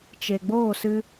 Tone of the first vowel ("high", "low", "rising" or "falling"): low